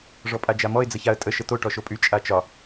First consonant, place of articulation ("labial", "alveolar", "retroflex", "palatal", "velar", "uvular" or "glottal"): retroflex